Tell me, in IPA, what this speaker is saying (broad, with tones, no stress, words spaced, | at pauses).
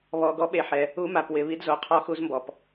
βɔ˨˩ ɡɔ˧˥ɓe˨˩ħɛ˨˩ | u˧˥ma˨˩p wɪ˨˩βi˧˥dzo˨˩qʰɔ˧˥ xu˧˥zmbɔ˨˩p